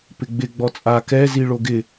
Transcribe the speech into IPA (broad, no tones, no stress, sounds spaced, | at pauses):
p ɪ ɡ͡b ɪ ɡ͡b ɔ t͡sʼ a k ɛ z i ɭ o ɡ ɪ